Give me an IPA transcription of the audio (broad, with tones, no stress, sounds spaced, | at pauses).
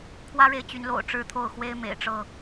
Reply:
kʰ w ä˦ ɻ e˨ ɪ̯ t͡ɕ y˨˦ n l o̰˨˩ ʊ̯ ʈ͡ʂ ɻ̩˥˨ t̪ʰ o˥˨ ʊ̯ x w e˦ ɪ̯ m ḛ˨˩ ɪ̯ ʈ͡ʂ ɤ˥˨